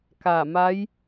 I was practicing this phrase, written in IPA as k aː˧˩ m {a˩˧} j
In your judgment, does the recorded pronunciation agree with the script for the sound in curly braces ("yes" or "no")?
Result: no